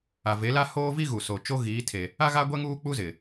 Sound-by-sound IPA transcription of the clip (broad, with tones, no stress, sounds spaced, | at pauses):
a˨ v e˨˦ l a˦ h oː˦ v i˦ ɣ u˨ s o˨ t͡ʃ o˦ ɣ iː˨˦ tʰ e˨ | a˦ ɣ a˦ ɡʷ ɛ˦ ŋ uː˦ k͡p u˦ z ɪ˨